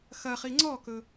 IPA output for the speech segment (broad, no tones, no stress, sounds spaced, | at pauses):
x ɐ χ i ŋ͡ǀ ɔ k ɵ